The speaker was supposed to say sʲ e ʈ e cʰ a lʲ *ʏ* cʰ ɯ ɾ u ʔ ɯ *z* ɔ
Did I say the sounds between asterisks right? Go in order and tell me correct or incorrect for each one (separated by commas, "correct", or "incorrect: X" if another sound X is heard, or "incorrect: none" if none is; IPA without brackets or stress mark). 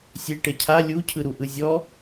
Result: incorrect: u, incorrect: zʲ